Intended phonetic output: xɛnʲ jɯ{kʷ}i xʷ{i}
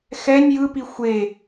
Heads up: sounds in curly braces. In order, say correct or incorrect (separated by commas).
incorrect, incorrect